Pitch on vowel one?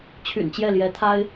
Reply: low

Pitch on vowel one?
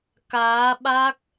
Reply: rising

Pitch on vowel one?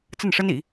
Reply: falling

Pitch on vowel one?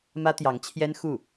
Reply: high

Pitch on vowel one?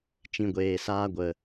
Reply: low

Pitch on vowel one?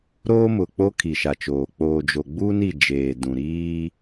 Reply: high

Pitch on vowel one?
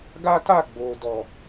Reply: high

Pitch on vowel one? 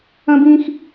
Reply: high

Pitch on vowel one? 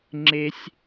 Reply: high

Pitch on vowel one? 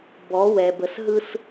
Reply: rising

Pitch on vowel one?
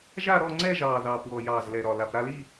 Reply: falling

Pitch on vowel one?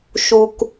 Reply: low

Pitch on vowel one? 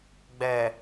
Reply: low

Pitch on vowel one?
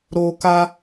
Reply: high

